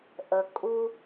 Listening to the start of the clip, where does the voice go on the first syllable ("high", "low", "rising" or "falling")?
low